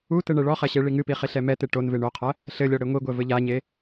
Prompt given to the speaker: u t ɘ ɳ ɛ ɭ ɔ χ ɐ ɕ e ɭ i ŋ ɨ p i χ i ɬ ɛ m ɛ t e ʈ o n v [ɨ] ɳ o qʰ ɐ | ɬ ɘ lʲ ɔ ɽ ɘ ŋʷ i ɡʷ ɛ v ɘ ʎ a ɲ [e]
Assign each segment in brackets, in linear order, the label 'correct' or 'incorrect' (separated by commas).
incorrect, correct